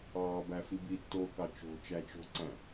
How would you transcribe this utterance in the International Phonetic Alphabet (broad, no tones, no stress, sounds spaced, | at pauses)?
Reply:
ɑː b æ f i b i tː oː k ɑ t͡ʃ o̤ t͡ʃ æ t͡ʃ o̤ ǀ æ̃